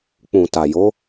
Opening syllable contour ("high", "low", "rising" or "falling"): low